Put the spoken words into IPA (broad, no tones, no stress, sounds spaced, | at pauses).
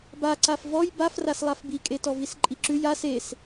b a ǀ a f v ɔ j b a f r a s lˠ a f b i kʼ e t ɔ v i s ǃʼ i ǁ ʉ j a s e s